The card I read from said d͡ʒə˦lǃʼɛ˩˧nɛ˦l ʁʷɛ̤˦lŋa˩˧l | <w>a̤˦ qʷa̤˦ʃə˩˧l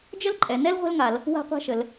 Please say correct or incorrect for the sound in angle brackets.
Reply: correct